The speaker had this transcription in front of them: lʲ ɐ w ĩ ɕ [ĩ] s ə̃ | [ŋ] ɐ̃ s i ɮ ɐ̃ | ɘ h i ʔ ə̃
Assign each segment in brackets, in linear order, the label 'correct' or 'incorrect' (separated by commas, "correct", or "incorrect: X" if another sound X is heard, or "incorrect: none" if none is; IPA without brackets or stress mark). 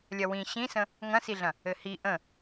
correct, correct